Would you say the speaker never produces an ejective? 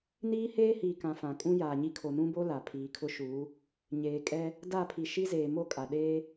no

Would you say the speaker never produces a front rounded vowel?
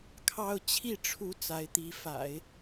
yes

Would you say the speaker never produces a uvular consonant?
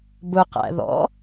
no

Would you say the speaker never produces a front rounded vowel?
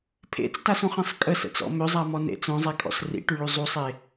no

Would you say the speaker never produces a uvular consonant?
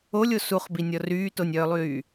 no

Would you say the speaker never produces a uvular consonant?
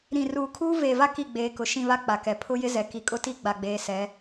yes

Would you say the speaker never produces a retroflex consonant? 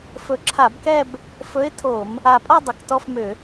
yes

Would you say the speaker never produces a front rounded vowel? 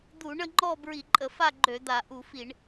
no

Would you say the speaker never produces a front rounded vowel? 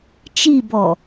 yes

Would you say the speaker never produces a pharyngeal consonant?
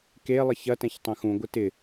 yes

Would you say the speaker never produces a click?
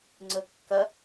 no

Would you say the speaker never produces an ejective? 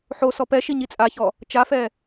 no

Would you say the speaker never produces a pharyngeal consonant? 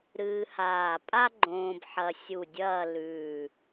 no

